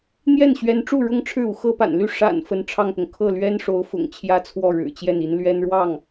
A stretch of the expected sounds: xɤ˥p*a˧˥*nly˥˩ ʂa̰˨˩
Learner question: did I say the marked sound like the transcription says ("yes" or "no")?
no